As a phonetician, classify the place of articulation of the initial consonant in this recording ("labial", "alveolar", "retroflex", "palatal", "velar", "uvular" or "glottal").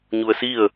palatal